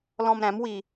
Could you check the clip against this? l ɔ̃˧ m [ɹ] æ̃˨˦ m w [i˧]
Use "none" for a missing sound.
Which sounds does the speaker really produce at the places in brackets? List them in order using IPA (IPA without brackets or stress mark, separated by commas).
ɾ, i˧